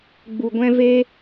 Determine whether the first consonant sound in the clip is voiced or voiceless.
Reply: voiced